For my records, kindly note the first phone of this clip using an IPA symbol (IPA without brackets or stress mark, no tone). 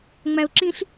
ŋ͡m